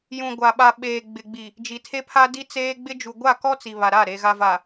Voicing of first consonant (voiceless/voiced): voiced